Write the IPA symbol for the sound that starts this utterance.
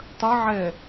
tˤ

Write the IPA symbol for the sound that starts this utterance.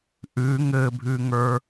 ʔ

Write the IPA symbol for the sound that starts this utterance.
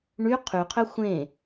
ɳ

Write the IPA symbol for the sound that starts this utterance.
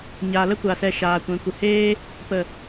ɲ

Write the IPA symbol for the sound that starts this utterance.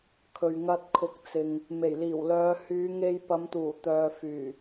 kʰ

